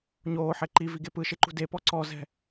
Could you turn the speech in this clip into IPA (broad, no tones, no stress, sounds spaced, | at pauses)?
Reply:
ɲ oː ħ ɛ ǃ i v i ɡ e p ɯ ʃ e ǃ ṳ d e p ɔ ǀ ɔ z ɛ̤